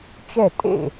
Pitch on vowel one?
falling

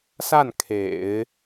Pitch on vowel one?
falling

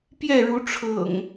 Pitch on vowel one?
falling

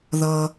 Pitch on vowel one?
low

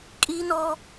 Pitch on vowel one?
high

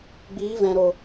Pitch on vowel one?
rising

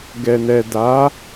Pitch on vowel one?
low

